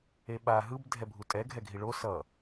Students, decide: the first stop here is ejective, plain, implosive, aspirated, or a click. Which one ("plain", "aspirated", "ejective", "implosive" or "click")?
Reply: implosive